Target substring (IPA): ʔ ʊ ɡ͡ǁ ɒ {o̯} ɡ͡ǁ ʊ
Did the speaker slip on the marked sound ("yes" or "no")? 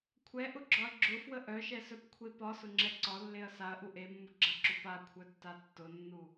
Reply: yes